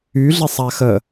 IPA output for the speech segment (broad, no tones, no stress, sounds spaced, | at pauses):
y ɮ e sˤ a x ə